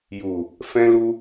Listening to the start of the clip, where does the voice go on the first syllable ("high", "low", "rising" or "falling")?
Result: low